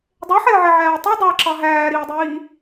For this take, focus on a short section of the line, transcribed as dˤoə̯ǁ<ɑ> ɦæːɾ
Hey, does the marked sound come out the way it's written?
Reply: yes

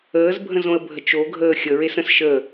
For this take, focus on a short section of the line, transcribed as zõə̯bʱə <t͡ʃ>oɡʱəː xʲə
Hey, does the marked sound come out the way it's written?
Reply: yes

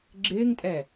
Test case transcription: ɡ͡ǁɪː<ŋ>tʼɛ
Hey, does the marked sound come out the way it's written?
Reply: yes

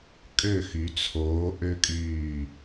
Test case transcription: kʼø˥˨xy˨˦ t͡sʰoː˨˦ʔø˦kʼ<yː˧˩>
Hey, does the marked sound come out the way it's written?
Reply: yes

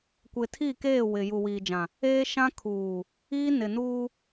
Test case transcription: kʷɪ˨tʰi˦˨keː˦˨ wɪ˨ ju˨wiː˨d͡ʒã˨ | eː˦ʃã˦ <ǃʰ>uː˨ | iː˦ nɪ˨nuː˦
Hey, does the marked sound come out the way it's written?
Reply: no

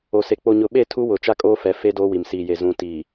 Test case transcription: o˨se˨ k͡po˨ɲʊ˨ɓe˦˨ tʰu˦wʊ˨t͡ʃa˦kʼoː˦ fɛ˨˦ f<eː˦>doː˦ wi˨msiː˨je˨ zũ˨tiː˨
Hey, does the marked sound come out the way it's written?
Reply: no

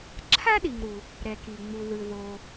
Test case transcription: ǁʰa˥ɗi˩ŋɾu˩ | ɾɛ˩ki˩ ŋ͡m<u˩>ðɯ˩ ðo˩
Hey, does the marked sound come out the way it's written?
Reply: yes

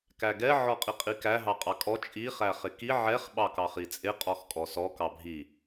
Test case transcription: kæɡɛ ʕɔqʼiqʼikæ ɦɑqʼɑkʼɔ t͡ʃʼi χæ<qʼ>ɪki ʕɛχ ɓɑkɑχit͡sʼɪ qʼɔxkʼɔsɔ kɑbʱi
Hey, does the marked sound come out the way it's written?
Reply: no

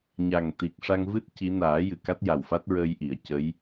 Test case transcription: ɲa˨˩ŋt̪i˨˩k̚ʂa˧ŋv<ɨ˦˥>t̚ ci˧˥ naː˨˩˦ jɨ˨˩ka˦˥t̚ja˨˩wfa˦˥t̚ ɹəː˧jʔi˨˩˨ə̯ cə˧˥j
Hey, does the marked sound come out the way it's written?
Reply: yes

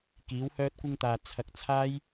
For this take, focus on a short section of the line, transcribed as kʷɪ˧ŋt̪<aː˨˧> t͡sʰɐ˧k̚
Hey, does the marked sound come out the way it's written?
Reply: no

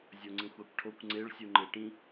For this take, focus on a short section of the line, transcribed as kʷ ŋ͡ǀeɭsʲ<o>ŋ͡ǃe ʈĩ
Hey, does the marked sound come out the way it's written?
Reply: no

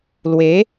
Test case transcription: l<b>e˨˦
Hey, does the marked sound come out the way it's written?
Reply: no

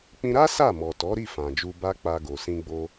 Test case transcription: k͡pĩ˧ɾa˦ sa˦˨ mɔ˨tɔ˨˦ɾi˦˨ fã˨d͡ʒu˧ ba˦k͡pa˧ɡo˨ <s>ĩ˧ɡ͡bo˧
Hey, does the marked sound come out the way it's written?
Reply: yes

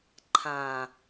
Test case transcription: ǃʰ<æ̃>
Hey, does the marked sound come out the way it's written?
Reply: no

